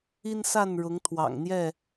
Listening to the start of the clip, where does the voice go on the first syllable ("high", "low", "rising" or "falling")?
high